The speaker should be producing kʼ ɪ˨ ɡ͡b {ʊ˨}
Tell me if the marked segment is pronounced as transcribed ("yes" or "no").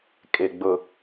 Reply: yes